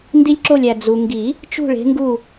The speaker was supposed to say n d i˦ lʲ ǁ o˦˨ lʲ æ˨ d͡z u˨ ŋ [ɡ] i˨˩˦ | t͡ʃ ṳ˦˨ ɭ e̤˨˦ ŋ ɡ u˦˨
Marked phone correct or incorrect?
correct